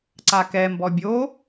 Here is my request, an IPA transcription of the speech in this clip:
ǀ a k ɛ m b ɔ bʲ o

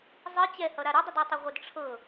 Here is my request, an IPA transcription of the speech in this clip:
zˤ ɨ t͡ɕ ɛ h ʌ ɾ a ɾ ɨ dˤ ə d ɔ tˤ ʌ ʁʷ ə d ʈ͡ʂʰ ɤ

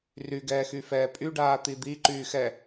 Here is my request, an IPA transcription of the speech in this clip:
r y ɡ ɛː x y f ɛː pʼ y ɖ aː t̪ i d̪ i ǃ yː x ɛ

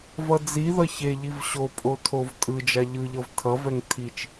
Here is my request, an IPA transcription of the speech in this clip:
v ʌ d͡z i ð ʌ ç e ʎ i v ɕ o pʼ o tʰ o v tʼ ɯ d͡ʒ a ʎ ɯ ʎ ʌ v tʰ ʌ v ɛ ŋ tʰ i t͡ʃ

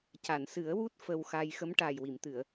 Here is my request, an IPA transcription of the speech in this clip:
c a˨˩˨ n s ɨ˨˩˦ ə̯ w u˦˥ t̚ f ə˧ w x a˧ j x ə˧˥ m ʈ aː˨˩ j w i˨˩˨ m t̪ ɨ˨˩˨ ə̯

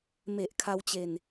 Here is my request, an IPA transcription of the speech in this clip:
m e˨˩ ʔ kʰ a˧ w t͡ɕ e˧ n

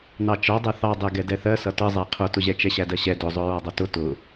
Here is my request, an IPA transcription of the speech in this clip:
n ɑ t͡ʃ ɒ dˤ ɛ θ ɑ dˤ ɛ ɡ ɛ d ɛ θ ɜ s ʌ t ʌ zˤ æ qʰ ʊ t ʊ ʑ ɛ t͡ʃ ɛ ɕ æ d ɜ ɕ ɛ d ʊ zˤ ʊ ɹ ɒ dˤ ʌ t ʊ t ʊ

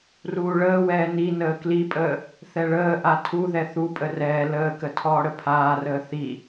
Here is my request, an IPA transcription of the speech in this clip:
r uː ɭ əː w ɛː n i n əː k l i pʼ əː | θ ɛ ɭ əː ʔ a tʰ u ð ɛ θ u pʼ ə r ɛː l əː k ə tʰ ɔː ɽ ə pʰ aː r əː θ i

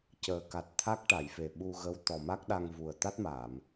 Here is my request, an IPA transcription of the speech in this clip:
c əː˨˩ k a˨˩ t̚ t̪ʰ a˦˥ k̚ ʈ a˨˩˨ j f e˨˩ ɓ u˧ ɣ ə˧˥ w t̪ ɔ˨˩ m a˦˥ k̚ ɗ a˧ ŋ v u˨˩ ə̯ t̪ a˦˥ t̚ m aː˨˩˨ m

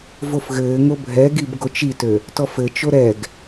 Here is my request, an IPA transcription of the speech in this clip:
v o f ɣ ɘː ŋ o bʱ ɛ ɡ i b ɡ o t͡ʃ i t ø | t ɔ f ɘ t͡ʃ o ɾ ɛ ɡ

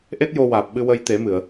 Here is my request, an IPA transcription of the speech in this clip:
ʔ e˦˥ t̚ j o˧ w aː˨˩ p̚ ɓ ɨ˧ w ə˧ j t̪ e˨˩˦ m ɨ˨˩˨ ə̯

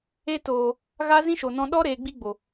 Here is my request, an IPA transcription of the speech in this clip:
e˧ t oː˨ | ɣ a˦ z ĩ˦ ʃ o˨ n ɔ̃˧ ɗ ɔ˦ ɾ eː˧ ɡ͡b i˦ ɡ͡b o˨

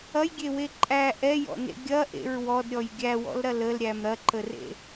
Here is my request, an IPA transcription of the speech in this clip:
ɐ j ɡʲ e w e ǃʼ æ ʔ ɛ j ɔ̰ n ḛ ɡʲ ɐ ʔ ḛ ɹ w ɔ d ɾʲ ɔ j ɡʲ æ w ɔ̰ l ɾ ɐ l ə l ɾʲ æ m ɾ ɐ ǃ ə r ḛ

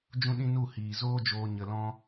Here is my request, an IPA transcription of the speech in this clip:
d͡ʒ ũ˦ ɗ ĩ˦ n u˦˨ h iː˨ z oː˦ d͡ʒ oː˧ ɲ ə˧ l ɔ̃˦

